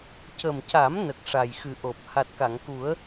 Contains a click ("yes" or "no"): no